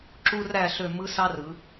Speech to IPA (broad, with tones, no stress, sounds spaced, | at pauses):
ǁ u˥ r æ˥˧ ɬ ø˥˧ m ɯ˥ s ɑ˥ r ɯ˨˦